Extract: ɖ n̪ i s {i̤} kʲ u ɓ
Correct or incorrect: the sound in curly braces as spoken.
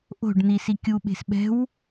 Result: incorrect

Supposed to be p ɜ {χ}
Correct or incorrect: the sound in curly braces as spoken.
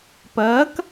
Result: incorrect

